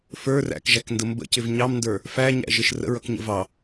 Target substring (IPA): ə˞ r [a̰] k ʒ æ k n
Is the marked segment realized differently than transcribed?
yes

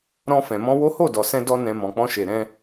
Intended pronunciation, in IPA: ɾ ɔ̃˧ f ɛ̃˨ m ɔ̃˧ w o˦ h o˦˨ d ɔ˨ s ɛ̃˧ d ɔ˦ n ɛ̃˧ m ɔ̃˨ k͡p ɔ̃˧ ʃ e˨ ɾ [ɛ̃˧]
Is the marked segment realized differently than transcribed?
no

